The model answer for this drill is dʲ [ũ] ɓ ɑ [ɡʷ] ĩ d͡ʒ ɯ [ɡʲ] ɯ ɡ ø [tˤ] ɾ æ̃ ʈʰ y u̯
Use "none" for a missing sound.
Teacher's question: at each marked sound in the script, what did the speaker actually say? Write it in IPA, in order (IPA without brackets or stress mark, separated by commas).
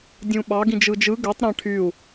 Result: ũ, ɡ, d͡ʒ, tˤ